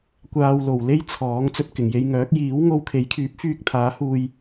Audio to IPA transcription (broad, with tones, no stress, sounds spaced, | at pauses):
kʷ aː˧ w l o˨ w l e˥ j t͡sʰ ɔː˨˥ ŋ t͡s ɵ˧ t̚ k ɪ˨˩ ŋ j e˧ j ŋ œː˨˥ k̚ j iː˨˥ w ŋ o˧ w kʰ e˨˥ j kʰ yː˨˥ p̚ f yː˧ k̚ t̪ʰ aː˨˥ h uː˧ j